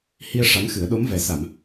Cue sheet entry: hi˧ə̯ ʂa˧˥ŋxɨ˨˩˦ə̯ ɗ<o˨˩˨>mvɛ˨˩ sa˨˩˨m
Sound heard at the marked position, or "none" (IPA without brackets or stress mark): o˧˥